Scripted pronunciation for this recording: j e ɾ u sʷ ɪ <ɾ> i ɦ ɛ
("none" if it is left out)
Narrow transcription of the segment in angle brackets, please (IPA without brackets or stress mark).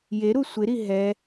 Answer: ɾ